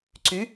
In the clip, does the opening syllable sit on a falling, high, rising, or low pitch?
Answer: rising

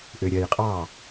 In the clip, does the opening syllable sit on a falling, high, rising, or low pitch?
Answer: low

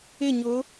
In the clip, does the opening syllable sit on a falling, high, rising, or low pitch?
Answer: falling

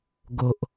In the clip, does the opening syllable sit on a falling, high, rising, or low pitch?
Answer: low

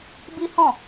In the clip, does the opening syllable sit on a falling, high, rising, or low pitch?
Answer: high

